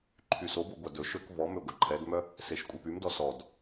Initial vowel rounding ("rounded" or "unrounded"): rounded